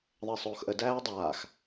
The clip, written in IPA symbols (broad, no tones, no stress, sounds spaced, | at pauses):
ðˤ ə e̯ sˤ oː x ʔ ə d æː o̯ dˤ aː x